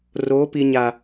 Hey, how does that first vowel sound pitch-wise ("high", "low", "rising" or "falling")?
rising